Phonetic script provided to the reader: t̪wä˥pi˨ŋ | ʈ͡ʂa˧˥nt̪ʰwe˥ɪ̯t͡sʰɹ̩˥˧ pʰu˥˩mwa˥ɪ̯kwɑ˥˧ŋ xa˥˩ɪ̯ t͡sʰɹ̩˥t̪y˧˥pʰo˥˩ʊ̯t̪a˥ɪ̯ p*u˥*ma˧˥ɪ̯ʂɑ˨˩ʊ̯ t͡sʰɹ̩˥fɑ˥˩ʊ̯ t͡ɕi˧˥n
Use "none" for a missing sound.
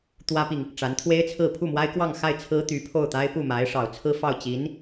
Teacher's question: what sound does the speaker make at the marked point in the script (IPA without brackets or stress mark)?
u˥˩